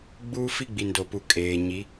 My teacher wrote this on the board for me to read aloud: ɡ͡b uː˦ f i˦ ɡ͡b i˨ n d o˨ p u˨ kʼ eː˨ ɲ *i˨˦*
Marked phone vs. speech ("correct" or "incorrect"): correct